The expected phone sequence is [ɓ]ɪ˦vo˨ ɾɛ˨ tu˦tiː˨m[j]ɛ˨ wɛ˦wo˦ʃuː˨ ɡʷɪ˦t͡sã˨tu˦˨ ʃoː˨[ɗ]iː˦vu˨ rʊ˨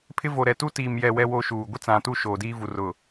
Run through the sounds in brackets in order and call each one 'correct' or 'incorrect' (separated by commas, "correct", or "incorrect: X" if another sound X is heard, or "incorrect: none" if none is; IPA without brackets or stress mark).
incorrect: pʰ, correct, incorrect: d